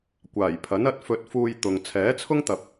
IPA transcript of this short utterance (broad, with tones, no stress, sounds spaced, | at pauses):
kʷ aː˨˩ j pʰ ɐ˨˥ n ɐ˨˥ t̚ f ɵ˧ t̚ f uː˧ j t̪ ʊ˨ ŋ t͡sʰ ɛː˨˥ t͡sʰ ʊ˥ ŋ t̪ ɐ˨ p̚